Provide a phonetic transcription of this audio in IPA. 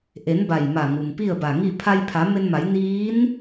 ʔ e˩˧ n b a˧˩ j m a˧˩ ŋ u˩ m p i˥˨ ə̯ b a˧˩ ŋ i˥˨ pʰ a˧ j pʰ a˩˧ m e˧ n m a˩˧ j n iː˧˥ n

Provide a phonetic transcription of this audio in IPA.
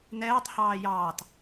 n ɛː tˤ h ɑː j ɑː t

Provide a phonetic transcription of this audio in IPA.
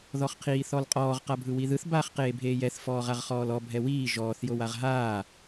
ð ɔ χ qʰ iː θ ɔ l qʼ ɔː ʁ q a bʱ ɯ w i ð ɯ θ b aː χ q eː bʱ eː j ɛ θ f ɔː ʁ a ʁ χ ɔː l ɔ bʱ ɛ w iː ʒ ɔː θ j o w a ʁ ɦ aː

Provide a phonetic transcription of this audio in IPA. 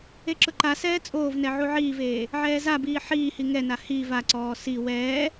e ǁ ʊ ǃ a s ɛː t͡sʼ oː v n ɛ ʕ u ʕ iː v eː | ʕ ɛː z a b iː ħ iː h i ŋ ɛ n a h i v a ǀ ɔː s i w ɛː

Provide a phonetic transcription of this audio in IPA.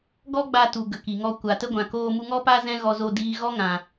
ɡ ɔ˦ ɡ͡b a˧ t u˨ ɡ ə˨ k i˨ ŋ ɔ˧ kʷ a˨ t ə˦ ɡʷ ã˨ k oː˧ m u˧ ŋ ɔ˦ p a˦ z ɛ̃˦ ɣ ɔ˧ z o˧ d iː˧ ɣ ɔ˦ ŋ ã˨

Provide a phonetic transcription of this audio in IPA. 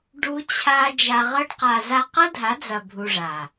ɖ u˦ t͡ɕʰ a˦ d͡ʒ a˧ ʁ ɤ˦ ɖ q a˧ z a˧ q ɤ˦ dʱ a˨˦ d͡z ɐ˨ bʱ u˧ ʐ a˨

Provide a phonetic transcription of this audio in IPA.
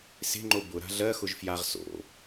s e̤ ŋ͡ǃ o b ʊ ɾ a̤ ɮ ɜ x ʊ ʒ f j a ʁ s o̰

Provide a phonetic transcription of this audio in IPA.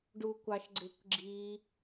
ɖ u kʷ ɑ ʃ ɡ͡ǀ ɪ kʷ ɡ͡ǁ i

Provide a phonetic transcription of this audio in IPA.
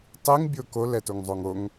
tˤ i ŋ bʲ o k o l ɛ t o ŋ zˤ o ŋ o ŋ

